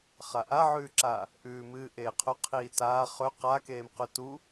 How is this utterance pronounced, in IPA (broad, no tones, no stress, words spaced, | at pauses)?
χaʔaʕʉːǁa | ʔʉːmɨːʔeːqʰɵ qʰiːtaː χɵ qakeːm qʉtu